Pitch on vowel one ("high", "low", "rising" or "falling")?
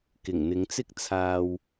low